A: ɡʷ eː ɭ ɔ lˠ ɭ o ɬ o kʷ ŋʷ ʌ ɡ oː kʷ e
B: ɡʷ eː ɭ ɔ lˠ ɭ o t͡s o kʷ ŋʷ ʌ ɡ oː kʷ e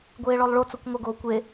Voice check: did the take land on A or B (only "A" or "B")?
B